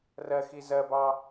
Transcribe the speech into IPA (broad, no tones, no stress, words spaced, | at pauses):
rɜxi zɜbɑ